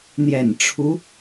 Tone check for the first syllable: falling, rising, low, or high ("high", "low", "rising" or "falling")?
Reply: low